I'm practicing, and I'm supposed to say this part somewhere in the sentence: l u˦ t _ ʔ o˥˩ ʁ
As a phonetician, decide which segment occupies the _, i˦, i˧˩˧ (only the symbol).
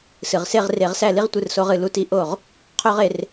i˦